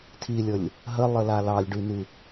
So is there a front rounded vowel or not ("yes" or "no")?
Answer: yes